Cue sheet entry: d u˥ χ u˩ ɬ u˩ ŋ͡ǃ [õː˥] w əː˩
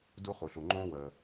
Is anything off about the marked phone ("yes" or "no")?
no